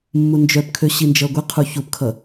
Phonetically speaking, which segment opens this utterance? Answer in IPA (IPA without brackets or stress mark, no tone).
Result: mː